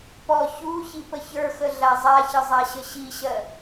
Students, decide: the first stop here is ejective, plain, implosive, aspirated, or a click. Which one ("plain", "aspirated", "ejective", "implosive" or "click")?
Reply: plain